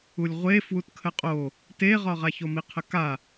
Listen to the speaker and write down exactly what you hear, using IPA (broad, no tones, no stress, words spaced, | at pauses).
ulʲʁʷe fwutkʰəqʼo | teʁɒʁa çomiqʰəka